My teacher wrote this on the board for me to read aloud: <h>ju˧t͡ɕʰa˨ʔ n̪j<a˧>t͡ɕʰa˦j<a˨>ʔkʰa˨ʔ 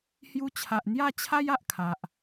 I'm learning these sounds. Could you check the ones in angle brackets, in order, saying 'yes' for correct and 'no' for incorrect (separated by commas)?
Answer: yes, no, yes